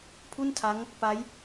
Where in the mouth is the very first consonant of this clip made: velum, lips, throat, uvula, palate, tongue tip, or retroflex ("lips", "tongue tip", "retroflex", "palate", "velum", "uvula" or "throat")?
lips